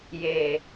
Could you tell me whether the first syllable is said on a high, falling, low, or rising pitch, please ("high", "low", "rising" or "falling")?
low